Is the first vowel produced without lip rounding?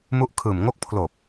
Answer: no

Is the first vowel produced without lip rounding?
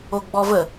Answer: no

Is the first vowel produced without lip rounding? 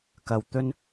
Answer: yes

